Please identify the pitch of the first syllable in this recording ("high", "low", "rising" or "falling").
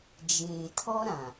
low